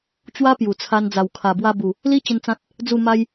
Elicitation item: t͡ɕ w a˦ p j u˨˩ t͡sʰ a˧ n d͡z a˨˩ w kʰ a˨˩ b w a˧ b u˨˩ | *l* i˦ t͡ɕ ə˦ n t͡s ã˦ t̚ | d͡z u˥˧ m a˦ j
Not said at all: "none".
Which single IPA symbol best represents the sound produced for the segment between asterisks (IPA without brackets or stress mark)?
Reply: l